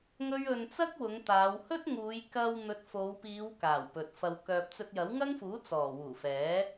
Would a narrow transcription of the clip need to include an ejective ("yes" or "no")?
no